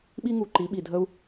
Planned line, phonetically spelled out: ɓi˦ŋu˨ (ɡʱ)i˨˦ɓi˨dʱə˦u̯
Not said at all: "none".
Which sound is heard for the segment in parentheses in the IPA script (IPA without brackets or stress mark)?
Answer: ǃ